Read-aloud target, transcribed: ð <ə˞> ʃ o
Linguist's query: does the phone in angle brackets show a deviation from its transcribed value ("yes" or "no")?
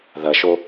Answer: yes